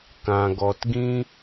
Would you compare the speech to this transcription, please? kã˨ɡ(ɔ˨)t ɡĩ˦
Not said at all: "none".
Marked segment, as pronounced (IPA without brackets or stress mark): ɔ˨